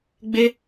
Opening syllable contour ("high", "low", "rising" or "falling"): high